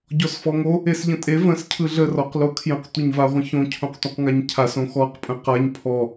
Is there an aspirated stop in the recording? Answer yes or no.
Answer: yes